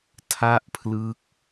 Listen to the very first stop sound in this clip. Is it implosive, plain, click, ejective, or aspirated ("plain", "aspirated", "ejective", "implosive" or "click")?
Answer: aspirated